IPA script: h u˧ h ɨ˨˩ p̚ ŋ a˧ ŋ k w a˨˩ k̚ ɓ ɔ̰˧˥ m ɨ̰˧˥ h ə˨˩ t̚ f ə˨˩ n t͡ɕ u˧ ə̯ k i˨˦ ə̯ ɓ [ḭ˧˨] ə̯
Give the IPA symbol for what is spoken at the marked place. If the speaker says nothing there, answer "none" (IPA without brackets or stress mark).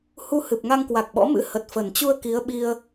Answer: i˧